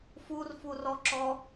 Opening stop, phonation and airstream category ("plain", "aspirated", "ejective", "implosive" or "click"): click